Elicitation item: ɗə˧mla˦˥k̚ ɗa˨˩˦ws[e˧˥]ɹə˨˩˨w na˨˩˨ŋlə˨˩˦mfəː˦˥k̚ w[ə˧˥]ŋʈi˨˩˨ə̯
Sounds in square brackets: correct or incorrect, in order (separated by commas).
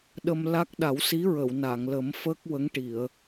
incorrect, correct